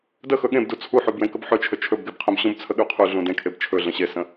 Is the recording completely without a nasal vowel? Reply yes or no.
no